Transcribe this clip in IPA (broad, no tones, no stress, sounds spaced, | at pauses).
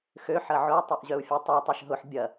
x ø ħ ɐ ʕ ʊ y̯ tˤ œ ʔ ʑ œ u̯ fʲ ɛ tˤ ø tˤ ɛ ʃ ɦ ʊ ħ bʲ ɐ